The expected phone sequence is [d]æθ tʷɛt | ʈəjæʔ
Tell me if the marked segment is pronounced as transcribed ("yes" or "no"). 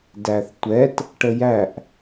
yes